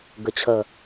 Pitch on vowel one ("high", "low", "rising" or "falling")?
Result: low